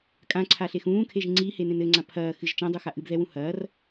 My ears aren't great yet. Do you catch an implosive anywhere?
no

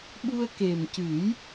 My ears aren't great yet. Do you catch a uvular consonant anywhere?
no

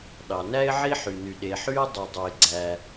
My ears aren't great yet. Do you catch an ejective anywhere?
no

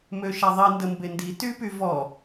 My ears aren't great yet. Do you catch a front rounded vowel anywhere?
yes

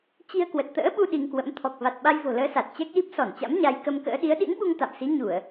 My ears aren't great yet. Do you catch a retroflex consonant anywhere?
no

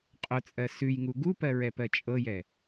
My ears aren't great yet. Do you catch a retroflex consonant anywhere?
no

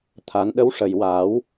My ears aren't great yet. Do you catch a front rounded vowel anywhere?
no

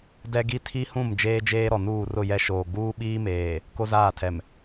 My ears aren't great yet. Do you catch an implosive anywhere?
yes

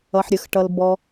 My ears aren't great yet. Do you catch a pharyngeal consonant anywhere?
yes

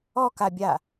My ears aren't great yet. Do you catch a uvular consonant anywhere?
no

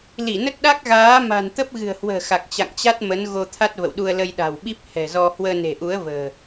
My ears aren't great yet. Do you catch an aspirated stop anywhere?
yes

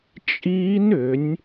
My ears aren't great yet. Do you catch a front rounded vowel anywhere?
yes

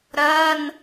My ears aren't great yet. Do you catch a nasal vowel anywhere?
no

